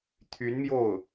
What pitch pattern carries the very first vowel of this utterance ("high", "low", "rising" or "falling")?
rising